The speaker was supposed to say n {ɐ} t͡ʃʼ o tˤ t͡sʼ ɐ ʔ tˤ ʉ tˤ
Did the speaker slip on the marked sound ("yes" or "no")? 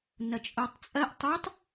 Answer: no